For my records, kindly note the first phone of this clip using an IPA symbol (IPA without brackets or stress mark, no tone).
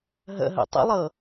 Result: ɦ